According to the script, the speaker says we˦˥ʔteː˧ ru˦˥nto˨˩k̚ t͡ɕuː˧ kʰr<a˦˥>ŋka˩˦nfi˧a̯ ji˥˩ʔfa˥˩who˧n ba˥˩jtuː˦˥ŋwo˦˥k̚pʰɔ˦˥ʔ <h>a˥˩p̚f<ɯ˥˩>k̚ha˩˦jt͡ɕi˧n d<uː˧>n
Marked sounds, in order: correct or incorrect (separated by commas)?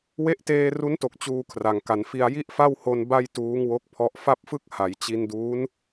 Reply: incorrect, incorrect, correct, incorrect